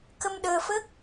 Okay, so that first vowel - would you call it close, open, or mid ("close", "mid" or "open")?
mid